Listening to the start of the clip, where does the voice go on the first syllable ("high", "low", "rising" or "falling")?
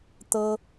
high